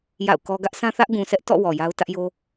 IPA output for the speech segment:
j a̰˦˨ ʊ̯ k ɔ˦ ɡ ä˦ ʔ sʰ ã˦ θ ä˦ ʔ ɡ ũ˨ sʰ ɛ˦ ʔ t ɔ̰˦˨ w ɔ˨ j a˦ ʊ̯ t ä˦ ʔ j o˦

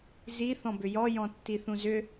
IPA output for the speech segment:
z i θ ɔ̃ b ʏ j ɔ j ɔ̃ tː i θ ũ z ʏ

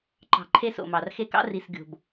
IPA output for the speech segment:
ǃ ɑ̤˨ ǃʰ e˦ s o̰˨ m ɑ˨ r x e˦ k ɑ̰˦ r i˨ s ɡʲ o̤˨ b

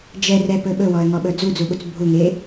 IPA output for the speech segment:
d͡ʒ ɛ r ɛ p ɵ ɓ ɵ w ɔ ə̯ ŋ ɔ ɓ ɵ d͡z u d͡z u ɓ u t͡s bʱ u ŋ e

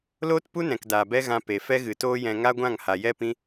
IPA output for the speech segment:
l oː˦ t p u˦ n ɛ̃˨ k d aː˨ b ɛ˦ ɣ ã˧ p e˨ f ɛ˦ ɣ ɨ˨ t oː˦ j ɛ̃˧ ŋ a˦ ɡʷ ã˦˨ ŋ h a˨ j ɛ˦ p ĩ˦

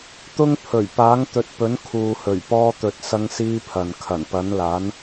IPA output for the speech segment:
t̪ ʊ˥ ŋ pʰ ɵ˨˩ ɥ p aː˨˥ ŋ t̪ ɵ˨ t̚ p ɵ˨˥ n kʰ uː˨ h ɵ˨˩ ɥ p ɔː˥ t̪ ɵ˧ t̚ s ɐ˥ ŋ s iː˥ pʰ ɐ˨ n kʰ ɐ˨˩ n p ɐ˨˥ n l aː˨˥ n

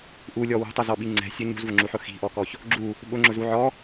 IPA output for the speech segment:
ʔ u lʲ ɔ w ṳ tˤ ʊ z ɔ ɓ i ŋ͡ǀ ɛ̤ sʲ ʊ ɲ ṳ z v ʊ ŋ͡ǁ u ħ ʊ x i̤ ʔ ɔ k ɔ ç | ɡ͡ǁ u | ɓ ʊ ŋ͡ǁ ʊ z u ʕ ɔ

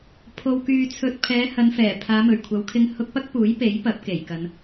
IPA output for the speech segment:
pʰ o˧ w k yː˧ t͡sʰ ɵ˧ t̚ pʰ ɛː˨˧ h ɐ˨˧ n f ɛː˨˩ pʰ aː˨˧ m ɵ˨˩ ɥ kʷʰ ɐ˨˧ w kʰ ɪ˧ ŋ h ʊ˧ k̚ p ɐ˥ k̚ p uː˨˥ j p e˨˥ j p ɐ˨˥ p̚ k e˨˩ j k ɐ˨˧ n

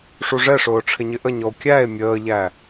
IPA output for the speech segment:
ʂ u ʐ ɛ ʂ ʊː ʈ͡ʂʰ ɪ ɲ ɪ ʔ ə ɲ ɔ o̯ kʲ æ e̯ mʲ əː ʎ æ

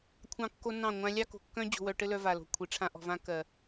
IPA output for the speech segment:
kʷʰ ɑ̃˦ kː o˦ n ɑ̃˦˨ ŋʷ ã˧ lʲ ɑ˦ k o̤˨ kː œ̃˦ d͡ʑ o̤˧ w œ˧ ʈ ɘ˦ l œ˧ v a˨ l o̤˧ kʷʰ i˨ ʈ͡ʂʰ ã˦ ʔ ɔ̤˧ v ã˦ k ɜ˨

